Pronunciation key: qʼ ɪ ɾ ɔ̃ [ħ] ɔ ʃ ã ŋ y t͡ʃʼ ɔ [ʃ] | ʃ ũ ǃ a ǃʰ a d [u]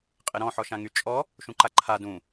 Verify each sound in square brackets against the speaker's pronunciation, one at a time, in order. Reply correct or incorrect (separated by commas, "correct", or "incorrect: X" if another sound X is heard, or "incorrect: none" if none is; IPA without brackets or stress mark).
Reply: correct, incorrect: none, incorrect: ũ